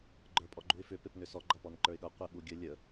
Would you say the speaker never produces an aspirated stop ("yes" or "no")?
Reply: yes